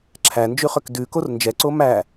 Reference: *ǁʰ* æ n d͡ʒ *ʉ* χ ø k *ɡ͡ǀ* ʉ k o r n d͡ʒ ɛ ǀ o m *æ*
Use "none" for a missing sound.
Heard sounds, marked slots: ǁʰ, ʉ, d, æ

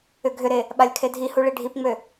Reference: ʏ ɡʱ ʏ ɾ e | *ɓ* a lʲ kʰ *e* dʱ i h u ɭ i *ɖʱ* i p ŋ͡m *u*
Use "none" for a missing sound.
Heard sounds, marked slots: ɓ, e, ɖʱ, ø

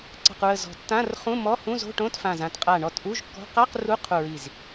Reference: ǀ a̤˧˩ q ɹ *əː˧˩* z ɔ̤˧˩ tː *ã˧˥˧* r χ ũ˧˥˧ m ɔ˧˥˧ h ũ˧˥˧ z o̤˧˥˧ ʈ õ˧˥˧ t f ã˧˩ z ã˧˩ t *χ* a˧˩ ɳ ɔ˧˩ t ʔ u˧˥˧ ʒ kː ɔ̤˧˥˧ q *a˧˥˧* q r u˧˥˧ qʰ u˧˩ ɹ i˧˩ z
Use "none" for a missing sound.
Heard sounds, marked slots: ə˧˩, ã˧˥˧, qʼ, a˧˥˧

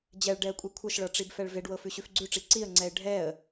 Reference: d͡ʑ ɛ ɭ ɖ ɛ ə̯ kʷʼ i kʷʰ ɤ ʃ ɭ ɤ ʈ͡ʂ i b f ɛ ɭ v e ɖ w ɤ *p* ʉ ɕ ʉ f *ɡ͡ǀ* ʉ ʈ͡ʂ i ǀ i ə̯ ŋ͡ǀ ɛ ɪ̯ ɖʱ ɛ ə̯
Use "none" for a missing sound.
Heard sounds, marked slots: f, ɡ͡ǀ

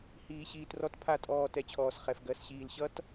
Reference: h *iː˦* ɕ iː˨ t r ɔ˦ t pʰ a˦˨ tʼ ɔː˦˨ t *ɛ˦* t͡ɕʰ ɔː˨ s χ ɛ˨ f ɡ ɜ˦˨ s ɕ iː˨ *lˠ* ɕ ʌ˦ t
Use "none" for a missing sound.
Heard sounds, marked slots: iː˨, ɛ˦, l

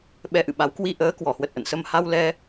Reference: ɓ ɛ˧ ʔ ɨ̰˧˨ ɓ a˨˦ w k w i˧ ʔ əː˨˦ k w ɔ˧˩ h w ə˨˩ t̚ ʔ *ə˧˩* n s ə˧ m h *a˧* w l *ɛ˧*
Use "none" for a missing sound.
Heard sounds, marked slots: ə̰˧˨, a˧, ɛ˧

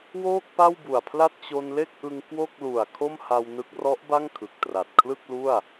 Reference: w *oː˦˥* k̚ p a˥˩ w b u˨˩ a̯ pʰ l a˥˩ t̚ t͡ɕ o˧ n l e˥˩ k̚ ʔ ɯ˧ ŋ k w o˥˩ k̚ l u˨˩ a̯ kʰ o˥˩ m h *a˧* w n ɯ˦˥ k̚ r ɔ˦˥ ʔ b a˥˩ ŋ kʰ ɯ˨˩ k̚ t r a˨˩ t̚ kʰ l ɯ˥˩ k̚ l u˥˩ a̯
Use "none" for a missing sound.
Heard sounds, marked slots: oː˥˩, a˧

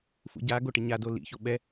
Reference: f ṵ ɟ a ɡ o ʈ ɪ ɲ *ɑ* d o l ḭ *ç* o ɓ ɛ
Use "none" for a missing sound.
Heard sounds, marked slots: a, ç

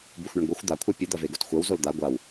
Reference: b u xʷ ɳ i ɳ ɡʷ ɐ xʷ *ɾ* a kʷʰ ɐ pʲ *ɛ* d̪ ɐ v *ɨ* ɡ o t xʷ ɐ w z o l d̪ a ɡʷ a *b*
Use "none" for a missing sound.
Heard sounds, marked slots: d̪, ɨ, e, w

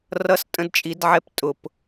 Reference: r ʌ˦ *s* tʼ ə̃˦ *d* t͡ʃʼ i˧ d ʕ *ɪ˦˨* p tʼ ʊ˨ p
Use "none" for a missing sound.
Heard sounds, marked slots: s, d, ɛ˦˨

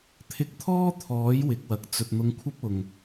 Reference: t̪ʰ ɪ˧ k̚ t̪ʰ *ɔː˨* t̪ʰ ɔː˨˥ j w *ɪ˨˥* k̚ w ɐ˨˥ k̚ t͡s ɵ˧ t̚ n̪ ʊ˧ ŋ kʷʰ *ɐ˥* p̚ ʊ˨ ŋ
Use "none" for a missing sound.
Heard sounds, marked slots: ɔː˥, ɪ˨˥, ɐ˥

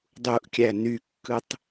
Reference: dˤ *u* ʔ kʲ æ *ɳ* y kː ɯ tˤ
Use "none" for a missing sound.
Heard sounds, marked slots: u, n

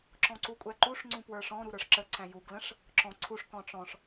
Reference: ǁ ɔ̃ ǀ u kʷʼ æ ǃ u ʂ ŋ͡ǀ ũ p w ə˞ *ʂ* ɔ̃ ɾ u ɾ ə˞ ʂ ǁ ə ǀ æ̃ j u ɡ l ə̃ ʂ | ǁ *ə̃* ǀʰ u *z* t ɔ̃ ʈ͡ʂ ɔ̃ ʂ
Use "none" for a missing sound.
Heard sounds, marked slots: ʂ, ɔ̃, ʂ

